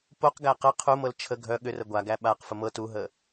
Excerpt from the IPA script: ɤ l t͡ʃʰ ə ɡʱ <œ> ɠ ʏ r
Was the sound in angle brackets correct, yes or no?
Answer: yes